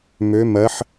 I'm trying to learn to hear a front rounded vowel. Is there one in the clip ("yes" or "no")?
yes